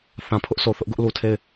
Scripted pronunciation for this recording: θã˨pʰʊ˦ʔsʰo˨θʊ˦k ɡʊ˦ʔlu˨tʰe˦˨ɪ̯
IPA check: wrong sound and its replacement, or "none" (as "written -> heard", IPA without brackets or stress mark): k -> ʔ